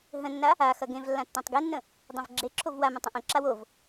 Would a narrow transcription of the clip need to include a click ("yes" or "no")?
yes